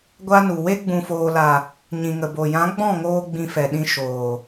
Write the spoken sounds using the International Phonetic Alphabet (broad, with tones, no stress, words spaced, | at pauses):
ɡʷa˦nu˨ we˧ɡ͡bũ˨foː˨la˨ | ɲĩ˨ŋə˨bo˨ jã˨˦ɡ͡bɔ̃˦˨ŋoː˧ ɡ͡bĩ˧fɛ˨ɗĩ˧ ʃoː˨